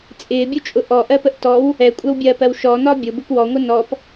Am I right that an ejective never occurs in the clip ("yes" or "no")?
no